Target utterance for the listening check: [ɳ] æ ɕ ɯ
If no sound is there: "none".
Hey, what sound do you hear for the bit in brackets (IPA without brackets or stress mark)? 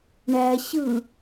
ɳ